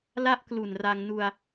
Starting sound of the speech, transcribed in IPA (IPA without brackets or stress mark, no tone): l